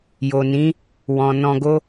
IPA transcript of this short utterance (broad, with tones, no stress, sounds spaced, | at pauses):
j o˨ n ĩ˨˦ | w ɔ̃˨ n ɔ̃˧ ɡ o˦